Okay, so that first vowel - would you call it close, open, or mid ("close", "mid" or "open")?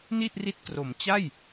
close